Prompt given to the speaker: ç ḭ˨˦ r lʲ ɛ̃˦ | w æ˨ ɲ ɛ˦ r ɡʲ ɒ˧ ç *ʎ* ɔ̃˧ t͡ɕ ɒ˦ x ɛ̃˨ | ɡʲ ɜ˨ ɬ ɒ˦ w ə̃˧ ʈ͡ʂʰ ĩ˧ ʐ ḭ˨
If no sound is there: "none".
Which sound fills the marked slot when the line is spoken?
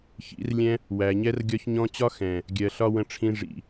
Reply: ɲ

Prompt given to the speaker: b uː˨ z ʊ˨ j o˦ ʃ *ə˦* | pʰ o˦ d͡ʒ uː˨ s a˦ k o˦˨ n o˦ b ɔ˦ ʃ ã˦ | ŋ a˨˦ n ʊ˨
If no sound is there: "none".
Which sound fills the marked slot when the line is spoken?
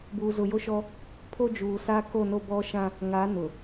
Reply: ɔ˦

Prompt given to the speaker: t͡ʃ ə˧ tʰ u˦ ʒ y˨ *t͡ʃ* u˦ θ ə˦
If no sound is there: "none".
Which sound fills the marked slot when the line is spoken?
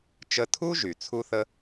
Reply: t͡sʰ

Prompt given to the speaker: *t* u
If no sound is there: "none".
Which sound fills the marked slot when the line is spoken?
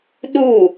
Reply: ɗ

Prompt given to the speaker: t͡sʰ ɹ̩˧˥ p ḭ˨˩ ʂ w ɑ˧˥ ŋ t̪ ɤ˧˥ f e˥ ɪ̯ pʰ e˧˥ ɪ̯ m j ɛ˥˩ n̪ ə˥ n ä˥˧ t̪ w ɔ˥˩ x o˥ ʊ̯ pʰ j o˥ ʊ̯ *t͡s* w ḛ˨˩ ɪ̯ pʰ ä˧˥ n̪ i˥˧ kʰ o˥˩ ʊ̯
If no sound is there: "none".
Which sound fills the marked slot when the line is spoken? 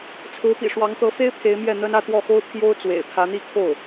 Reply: t͡s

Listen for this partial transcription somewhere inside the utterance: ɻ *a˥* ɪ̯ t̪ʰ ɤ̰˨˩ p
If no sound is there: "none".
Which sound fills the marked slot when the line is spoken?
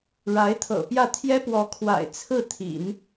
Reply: a˧˥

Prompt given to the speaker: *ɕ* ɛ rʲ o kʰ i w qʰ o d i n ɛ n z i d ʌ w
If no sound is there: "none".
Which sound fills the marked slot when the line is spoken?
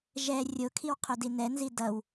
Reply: ʒ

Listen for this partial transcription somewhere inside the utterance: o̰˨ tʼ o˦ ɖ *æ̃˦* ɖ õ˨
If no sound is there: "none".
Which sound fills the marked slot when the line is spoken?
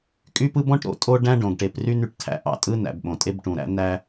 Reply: æ̃˦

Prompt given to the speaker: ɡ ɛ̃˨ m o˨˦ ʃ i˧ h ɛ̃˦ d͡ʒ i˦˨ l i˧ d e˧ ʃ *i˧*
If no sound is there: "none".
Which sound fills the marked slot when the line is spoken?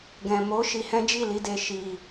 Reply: i˧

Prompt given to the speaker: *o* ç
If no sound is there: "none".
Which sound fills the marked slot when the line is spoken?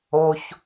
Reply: o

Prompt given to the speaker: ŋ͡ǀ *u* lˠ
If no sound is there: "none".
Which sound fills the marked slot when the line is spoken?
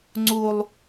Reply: u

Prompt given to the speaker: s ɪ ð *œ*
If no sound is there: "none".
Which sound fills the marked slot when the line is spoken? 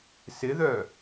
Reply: œ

